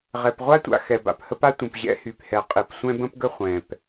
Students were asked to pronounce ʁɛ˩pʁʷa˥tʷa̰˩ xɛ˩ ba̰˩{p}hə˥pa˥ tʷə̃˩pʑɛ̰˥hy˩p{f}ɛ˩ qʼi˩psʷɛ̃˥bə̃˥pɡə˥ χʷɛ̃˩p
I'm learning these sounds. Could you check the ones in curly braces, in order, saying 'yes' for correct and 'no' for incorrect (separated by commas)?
yes, no